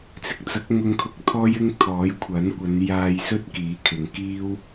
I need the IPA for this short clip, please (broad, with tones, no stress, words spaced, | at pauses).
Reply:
t͡sɪ˧k̚t͡sɐ˨˥k̚ ŋʊ˧ŋkʰʊ˧k̚t̪ʰɔː˥j ɪ˥ŋt̪ʰɔː˨˥jkʷʰɐ˨˥nkʷɐ˨˧n jaː˧jsɵ˥t̚ kiː˨˥kʰɪ˨ŋ kiː˥w